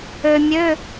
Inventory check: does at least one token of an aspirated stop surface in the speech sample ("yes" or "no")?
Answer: no